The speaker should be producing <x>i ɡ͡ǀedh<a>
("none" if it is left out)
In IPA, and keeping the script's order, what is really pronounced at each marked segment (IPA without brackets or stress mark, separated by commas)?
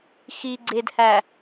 x, æ